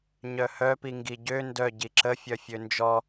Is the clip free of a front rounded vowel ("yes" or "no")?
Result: no